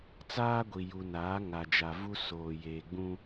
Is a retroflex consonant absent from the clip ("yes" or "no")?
yes